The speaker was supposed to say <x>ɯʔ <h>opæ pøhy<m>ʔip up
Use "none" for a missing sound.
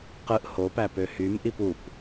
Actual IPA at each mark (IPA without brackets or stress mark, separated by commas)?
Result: q, h, m